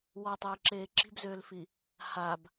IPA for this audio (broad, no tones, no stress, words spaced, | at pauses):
wɔtˤeːǁeː ǁi̤bzøːlfi | hab